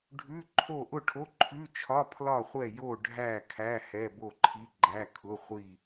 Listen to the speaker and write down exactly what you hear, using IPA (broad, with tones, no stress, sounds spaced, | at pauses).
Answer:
ɖʱ ʉ˧˥˧ ǃʰ o˥˨ ʔ ʊ˥˨ ʈʰ o˧˥˧ ǃʰ ʉ˧˥˧ t͡ʃʰ ɒ˧˥˧ pʰ l ɒ˥˨ χʷ ɛ˥˨ j o˥˨ ɖʱ æ˥˨ kʰ æ˧˥˧ h ɛ˧˥˧ b o˥˨ ǃʰ i˧˥˧ ɡ͡ǃ æ˧˥˧ kʰ ʊ˧˥˧ χʷ i˥˨